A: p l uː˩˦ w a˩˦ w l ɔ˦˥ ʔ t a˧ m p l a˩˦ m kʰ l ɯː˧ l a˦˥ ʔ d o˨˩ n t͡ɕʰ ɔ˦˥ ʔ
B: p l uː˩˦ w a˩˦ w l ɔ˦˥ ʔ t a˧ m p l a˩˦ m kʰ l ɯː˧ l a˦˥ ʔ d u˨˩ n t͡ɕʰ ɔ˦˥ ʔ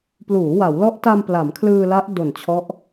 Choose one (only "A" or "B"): A